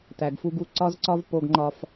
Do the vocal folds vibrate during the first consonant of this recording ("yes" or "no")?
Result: no